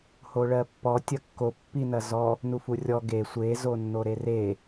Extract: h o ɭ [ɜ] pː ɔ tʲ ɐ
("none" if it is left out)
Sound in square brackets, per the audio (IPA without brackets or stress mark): ɜ